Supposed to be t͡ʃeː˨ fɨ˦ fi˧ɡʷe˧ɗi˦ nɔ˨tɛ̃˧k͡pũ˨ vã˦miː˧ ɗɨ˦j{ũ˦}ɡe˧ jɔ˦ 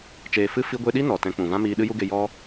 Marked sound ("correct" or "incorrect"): incorrect